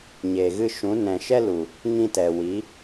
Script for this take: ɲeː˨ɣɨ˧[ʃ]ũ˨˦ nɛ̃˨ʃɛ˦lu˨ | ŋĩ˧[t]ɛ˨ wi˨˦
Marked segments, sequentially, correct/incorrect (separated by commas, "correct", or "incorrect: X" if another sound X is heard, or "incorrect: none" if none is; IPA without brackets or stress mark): correct, correct